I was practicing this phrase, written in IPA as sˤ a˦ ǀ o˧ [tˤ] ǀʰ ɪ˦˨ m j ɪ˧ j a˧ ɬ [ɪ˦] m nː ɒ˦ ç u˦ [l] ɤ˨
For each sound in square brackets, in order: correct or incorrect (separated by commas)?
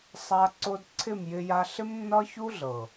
incorrect, correct, incorrect